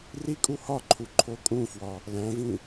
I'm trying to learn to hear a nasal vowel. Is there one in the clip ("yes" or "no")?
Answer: yes